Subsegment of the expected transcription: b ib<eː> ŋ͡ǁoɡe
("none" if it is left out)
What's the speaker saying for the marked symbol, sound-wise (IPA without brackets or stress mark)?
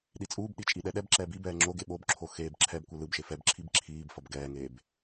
ɛː